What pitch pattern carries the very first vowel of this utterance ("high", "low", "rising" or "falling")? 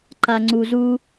low